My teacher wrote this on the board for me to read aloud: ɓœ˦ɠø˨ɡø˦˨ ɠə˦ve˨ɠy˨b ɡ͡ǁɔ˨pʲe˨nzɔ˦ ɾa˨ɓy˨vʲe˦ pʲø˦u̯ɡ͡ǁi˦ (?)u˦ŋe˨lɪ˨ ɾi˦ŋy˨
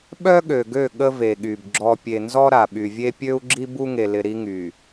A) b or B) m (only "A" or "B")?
A